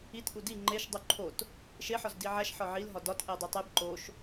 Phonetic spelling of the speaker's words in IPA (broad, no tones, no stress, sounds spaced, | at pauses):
i t ʔ u d i ŋ͡ǃ e ʃ dˤ u ǃʰ o t | ʃ e ħ ɒ z d i ʕ æ ʃ ħ ɒ ʕ i l ɦ ɒ d ɒ t ʔ e dˤ e tˤ e b ǃ o ʃ